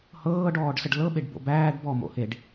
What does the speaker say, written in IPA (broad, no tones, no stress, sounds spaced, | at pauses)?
h ɤː ɖ ɔː ɖ s ə ɖ l ɤ ɓ e ɖ b o̰ b æː ɖ b ɔ m o̰ h e ɖ